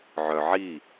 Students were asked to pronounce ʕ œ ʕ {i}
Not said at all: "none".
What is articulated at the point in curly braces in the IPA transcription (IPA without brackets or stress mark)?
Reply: i